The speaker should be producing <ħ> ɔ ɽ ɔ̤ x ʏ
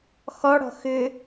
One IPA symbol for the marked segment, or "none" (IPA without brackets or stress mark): x